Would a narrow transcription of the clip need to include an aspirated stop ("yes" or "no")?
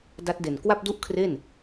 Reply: yes